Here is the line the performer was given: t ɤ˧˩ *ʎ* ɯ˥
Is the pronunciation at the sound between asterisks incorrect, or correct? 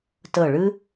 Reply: incorrect